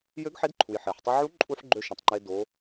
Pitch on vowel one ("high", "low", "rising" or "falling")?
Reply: rising